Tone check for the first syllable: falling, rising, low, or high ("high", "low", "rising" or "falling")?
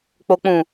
low